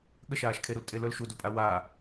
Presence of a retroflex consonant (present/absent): absent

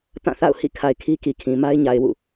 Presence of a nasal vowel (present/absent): present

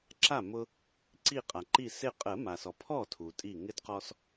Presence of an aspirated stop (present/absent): present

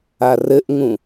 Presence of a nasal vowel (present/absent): present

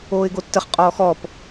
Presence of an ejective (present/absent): present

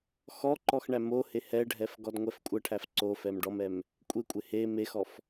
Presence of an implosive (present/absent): absent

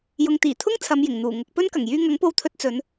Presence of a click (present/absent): absent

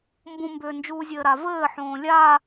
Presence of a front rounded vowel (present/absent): present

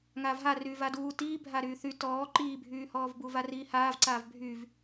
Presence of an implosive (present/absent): absent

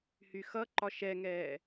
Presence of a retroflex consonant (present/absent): absent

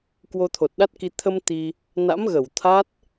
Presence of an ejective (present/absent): absent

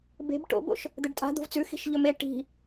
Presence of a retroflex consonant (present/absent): present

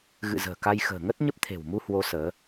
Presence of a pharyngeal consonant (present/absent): absent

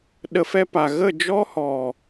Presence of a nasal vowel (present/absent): absent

